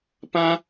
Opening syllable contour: high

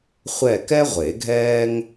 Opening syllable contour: falling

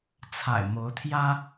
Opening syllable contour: low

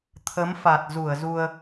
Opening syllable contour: rising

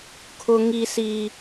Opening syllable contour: high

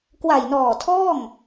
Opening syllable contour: low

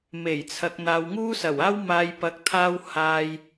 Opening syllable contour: low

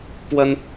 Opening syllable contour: high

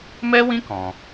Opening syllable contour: high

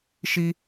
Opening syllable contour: high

